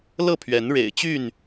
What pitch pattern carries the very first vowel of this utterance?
falling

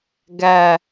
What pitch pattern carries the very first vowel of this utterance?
low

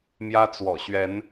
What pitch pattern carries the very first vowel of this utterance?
high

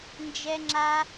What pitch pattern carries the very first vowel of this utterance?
high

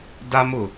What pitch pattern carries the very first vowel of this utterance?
high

